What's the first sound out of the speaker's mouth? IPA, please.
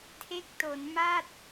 tʰ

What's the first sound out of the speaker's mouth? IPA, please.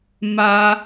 m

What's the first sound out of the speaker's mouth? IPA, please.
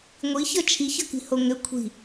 ŋʷ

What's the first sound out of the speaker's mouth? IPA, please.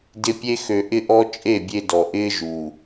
d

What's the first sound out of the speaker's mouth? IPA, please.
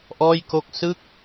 ʔ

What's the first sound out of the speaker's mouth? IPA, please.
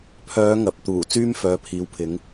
pʰ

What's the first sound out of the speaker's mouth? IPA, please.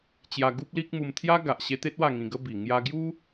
t͡ɕ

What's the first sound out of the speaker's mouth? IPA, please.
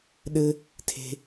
ɗ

